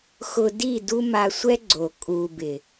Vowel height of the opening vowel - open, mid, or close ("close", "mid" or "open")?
close